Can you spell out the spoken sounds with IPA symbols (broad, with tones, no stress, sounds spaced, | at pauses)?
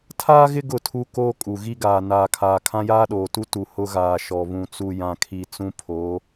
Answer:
tʰ aː˦ ɣ ɪ˦ ɡ ʊ˦˨ tʰ u˦ k oː˦ kʼ u˨ ɣ i˦ ɡ aː˨ n aː˨ kʰ aː˨ kʰ ã˦ j aː˦ ɗ oː˨ t u˦ t u˨ h ʊ˦ ɣ aː˨ ʃ ɔ˨ β ũ˨ t͡s u˨ j ã˨ kʰ i˨ t͡s ũ˦ pʰ o˨˦